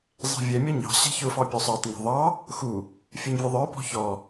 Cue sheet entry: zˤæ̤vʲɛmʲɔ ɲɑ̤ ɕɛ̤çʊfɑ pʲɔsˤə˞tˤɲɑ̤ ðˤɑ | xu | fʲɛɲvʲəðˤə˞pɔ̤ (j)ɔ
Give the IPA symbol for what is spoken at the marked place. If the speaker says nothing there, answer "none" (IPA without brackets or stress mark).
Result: ç